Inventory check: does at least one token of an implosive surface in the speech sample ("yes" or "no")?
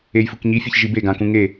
no